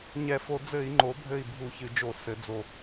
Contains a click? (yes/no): yes